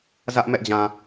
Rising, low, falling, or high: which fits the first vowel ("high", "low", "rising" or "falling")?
high